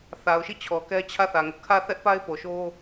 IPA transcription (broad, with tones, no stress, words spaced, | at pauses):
θa˨ʊ̯ʃi˦˨ t͡ɕʰɔ˨kɛ˦ t͡ɕʰä˦˨θä˨ŋʊ˦ʔ kʰä˦˨θɛ˦ʔpa˦ɪ̯ po˨ʃo˦